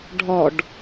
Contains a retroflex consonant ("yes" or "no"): yes